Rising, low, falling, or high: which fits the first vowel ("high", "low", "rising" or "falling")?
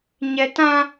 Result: high